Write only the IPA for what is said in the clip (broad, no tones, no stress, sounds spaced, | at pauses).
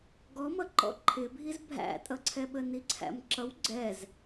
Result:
ɡ ɔ m ʌ ǃ ɔ̰ ǃʰ ɪ bʱ i z bʱ æ̰ tʼ ʌ ǀʰ ɛ ɓ ə n i ǀʰ æ̰ m ǁ ʌ w ɡ͡ǀ ɛ z